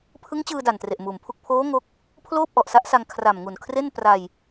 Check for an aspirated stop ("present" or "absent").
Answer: present